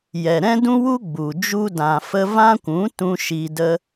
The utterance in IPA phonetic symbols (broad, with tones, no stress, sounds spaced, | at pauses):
j ɛ˨ ɾ ɛ̃˦ d ũ˦ w u˦ ɡ͡b u˨ d͡ʒ u˧ d ã˨ f ə˧ v ã˦ kʷ ũ˨˦ t ũ˦ ʃ i˧ d ə˦